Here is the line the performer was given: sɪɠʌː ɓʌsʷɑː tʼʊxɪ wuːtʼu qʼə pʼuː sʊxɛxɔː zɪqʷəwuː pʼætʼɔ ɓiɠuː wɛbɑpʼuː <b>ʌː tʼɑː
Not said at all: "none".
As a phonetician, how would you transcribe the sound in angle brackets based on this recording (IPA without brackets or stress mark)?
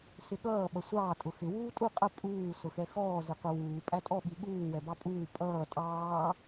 pʼ